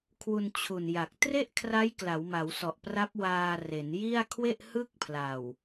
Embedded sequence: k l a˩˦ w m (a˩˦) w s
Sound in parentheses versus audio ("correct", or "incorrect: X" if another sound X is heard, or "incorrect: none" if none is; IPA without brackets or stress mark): correct